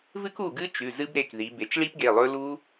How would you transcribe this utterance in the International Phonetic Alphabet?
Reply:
v ɨ˦˥ k u˩˧˩ ɡ ɨ˦˥ t͡ʃ ʉ˩˧˩ z ɨ˦˥ b ɾ e˩˧˩ k ð i˩˧ b e˩˧ t͡ʃ ɭ i˦˥ p ɡ e˩˧˩ lˠ ɵ˦˥ l u˦˥

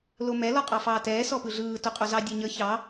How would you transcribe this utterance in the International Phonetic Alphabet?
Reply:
l o m ɛ l ɔ qʼ ɑ f ɑː t ɛː s ɔ p ɯ ɮ ɯː t o qʼ o z ɑ dʲ e ɲ ə ç ɑ

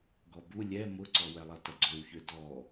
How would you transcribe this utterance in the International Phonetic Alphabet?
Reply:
ɡ ɔ b u lʲ ɛ m ʊ ǀ ɔ w ɛ lˠ ɐ t ɐ ɡ͡ǀ ø w ç ø d ɔ

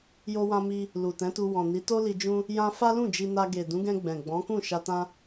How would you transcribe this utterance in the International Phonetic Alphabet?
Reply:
j o˧ w ã˧ m i˧ | l u˨ t ɛ̃˨˦ t u˧ w ɔ̃˨ n i˨˦ t o˦ l i˧ d͡ʒ ũ˦ | j ã˧ f a˦ l ũ˦˨ d͡ʒ i˧ n a˧ ɡ e˨ d ũ˨˦ ɡ ɛ̃˧ ɡ͡b ɛ̃˨ ɡ͡b ɔ̃˨˦ k ũ˦˨ ʃ a˧ t ã˦

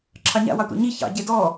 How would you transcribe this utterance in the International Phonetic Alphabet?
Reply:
ǁʰ ɑ ɲ a̰ w ɑ tʷ ɑ̰ ɲ i ç ɑ̰ ɟ e d ɔ

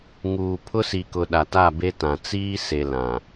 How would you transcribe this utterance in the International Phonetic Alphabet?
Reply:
ŋ uː˨ pʰ ʊ˦ s i˨ k ʊ˨ ɗ a˨ t a˦˨ b e˦ t ã˨ t͡s iː˦ s e˨ l ã˨

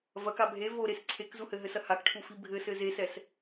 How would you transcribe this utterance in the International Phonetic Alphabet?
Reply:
v ɐ k a bʱ e v o ɾ e s ǀʰ e k z u h ɘ ɦ ɘ s ɐ h a k ʈʰ u f i bʱ ɘ s ɘ z e s ɛ s

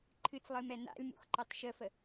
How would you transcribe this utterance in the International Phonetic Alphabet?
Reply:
ǃʰ ɨ t͡s lˠ ɨ m ɛ n a̰ lʲ m ṵ x ǃ ɑ t ʃ ə f ə

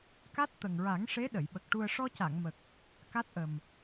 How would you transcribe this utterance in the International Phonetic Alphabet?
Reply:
k a˦˥ t̚ t̪ ə˨˩ ŋ ɹ a˨˩˦ ŋ ʂ e˧˥ ɗ ə˨˩˨ j ɓ ə˨˩ k̚ ʈ u˧ ə̯ ʂ ɔ˧ c a˨˩˨ ŋ m ə˨˩ k̚ | k a˦˥ t̚ ʔ ə˨˩ m

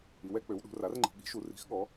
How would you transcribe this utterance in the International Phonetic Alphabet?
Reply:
i˩˧ w ɛ˩˧ k͡p ø˩˧ w ɗ ṳ˩˧ r a˩˥ r ŋ͡ǃ i̤˩˧ ɠ i̤˩˥ ʃ u˩˧ r i̤˩˥ x ɠ ɔ˩˧

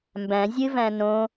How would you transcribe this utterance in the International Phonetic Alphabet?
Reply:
m b æ̃ zʲ ɨ v æ̃ n õ

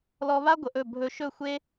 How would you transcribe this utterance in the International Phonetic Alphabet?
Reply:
l ɔ˧ β a˦ ɡʷ ə˨ ʔ ɵ˦˨ bʱ ɵ˧ ʃ ɵ˦˨ xʷ e˦

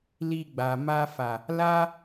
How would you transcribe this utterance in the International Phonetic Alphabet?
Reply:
l i˧ ɡ͡b a˨ m a˧ f a˨ | l a˦

